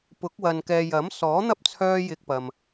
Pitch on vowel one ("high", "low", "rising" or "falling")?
rising